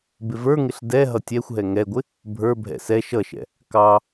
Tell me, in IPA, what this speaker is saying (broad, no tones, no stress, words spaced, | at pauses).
bɪvə˞ŋɪɬ dɛ ɦʌtʲɛxʷɦɛ ŋɛɡʷɪ | bʱə˞bʱɛ̰ sɛ ʃʌʃɛ̰ | kɑ